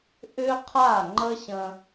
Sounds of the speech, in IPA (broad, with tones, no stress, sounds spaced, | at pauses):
ʔ ʏ˥ qʰ a˥˩ ŋ͡ǃ ə˥ ɕ ə̃˧